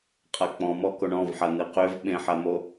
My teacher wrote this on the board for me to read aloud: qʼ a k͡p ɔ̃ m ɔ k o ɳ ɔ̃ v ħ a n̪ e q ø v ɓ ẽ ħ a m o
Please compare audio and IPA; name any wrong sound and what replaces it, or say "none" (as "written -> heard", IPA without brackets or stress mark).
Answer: none